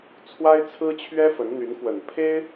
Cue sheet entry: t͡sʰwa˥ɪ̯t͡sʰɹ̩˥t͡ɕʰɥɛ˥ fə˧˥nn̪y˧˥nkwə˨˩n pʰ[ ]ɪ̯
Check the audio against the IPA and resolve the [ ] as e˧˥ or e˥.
e˥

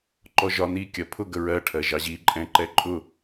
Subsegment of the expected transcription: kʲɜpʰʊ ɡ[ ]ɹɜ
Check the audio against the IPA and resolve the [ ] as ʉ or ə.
ə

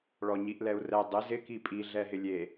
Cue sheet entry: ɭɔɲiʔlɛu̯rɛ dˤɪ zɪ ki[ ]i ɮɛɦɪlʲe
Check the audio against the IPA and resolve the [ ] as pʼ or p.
pʼ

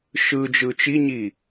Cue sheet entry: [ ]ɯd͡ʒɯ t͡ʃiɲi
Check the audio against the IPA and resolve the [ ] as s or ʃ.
ʃ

